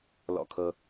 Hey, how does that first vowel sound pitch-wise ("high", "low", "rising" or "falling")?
low